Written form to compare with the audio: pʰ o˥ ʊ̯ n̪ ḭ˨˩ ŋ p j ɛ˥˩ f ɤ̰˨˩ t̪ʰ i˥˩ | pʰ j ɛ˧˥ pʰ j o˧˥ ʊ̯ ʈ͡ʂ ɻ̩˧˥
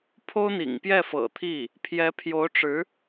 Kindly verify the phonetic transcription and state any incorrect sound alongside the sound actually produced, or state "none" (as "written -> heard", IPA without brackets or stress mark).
none